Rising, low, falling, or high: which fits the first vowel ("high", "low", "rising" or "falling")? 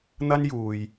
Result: high